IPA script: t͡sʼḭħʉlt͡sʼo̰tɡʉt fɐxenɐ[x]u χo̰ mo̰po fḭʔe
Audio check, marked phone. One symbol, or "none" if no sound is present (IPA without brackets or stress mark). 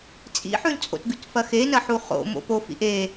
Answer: ħ